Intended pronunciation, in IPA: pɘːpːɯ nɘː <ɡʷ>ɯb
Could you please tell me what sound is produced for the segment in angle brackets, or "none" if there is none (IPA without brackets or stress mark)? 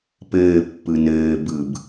b